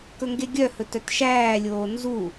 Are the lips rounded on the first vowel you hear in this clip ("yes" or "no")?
yes